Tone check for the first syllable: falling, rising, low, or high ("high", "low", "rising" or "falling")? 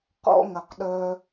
high